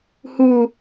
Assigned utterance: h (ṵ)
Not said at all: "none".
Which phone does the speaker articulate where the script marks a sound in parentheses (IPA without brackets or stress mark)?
u